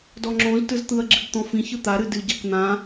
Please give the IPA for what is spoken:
d ɔ ŋ͡ǁ õ z t ɯ z t̪ ɯ ɐ̯ ɡ͡ǁ ɨ ɡ t̪ ɔ̃ f ĩ ç ɯ t̪ a ɾ ɨ d ɨ ɟ a k n̪ ã

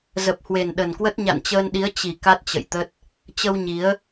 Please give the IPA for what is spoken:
z ə˨˩ p̚ h w e˨˩ n ɗ ə˨˩ n k w ə˦˥ t̚ ɲ a̰˧˨ n t͡ɕ əː˧ n ɗ i˨˦ ə̯ t͡ɕ i˨˩ k a˦˥ t̚ t͡ɕ ə̰˧˨ j t̪ ə˦˥ t̚ | t͡ɕ ə˧ w ɲ i˨˦ ə̯

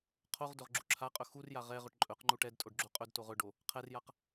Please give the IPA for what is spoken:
qʰ o ʁ d ɵ ʁ ɡ͡ǁ u ǁʰ a qʼ ɵ x u r j a ʁ ɛ ʁ ɵ ʈ ǃʼ ɵ q ŋ͡ǃ u ʈ ɛ d tʼ o ɖ ɡ͡ǁ u qʼ ɵ d t o ʁ ɵ ɖ o | qʰ ɛ r j a q

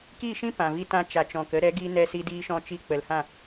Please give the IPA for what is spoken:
k i˦˨ ʃ ĩ˦ p ã˨ v i˧ t ã˧ t͡ʃ a˨ t͡ʃ ɔ̃˨ k ə˧ ɾ ɛ˨˦ ɡ i˧ n ɛ˧ s i˧ d iː˧ ʃ ɔ̃˧ t͡ʃ i˧ k͡p ə˨ l h ã˦˨

